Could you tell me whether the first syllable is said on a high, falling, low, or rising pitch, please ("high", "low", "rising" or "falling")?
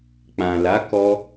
low